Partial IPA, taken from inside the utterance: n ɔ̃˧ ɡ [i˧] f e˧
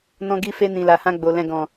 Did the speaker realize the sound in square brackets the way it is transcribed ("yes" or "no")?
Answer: yes